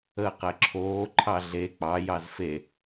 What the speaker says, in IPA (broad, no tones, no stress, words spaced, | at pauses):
əːqɛǁʰoːǃʰɑ ɮe k͡pɑjɑz fe